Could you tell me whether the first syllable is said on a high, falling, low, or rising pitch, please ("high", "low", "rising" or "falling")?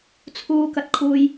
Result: high